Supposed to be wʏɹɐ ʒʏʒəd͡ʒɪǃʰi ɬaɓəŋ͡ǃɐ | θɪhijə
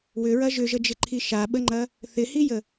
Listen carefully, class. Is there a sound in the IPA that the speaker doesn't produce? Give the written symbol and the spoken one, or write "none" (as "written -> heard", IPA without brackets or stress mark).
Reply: ɬ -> ʃ